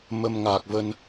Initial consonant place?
labial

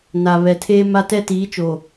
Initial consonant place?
alveolar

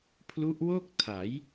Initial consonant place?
labial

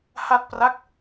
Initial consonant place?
glottal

